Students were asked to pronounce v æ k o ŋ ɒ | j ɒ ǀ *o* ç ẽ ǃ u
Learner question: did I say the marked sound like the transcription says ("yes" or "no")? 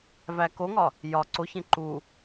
yes